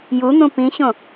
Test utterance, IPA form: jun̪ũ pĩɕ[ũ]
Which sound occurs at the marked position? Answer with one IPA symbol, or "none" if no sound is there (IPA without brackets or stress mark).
õ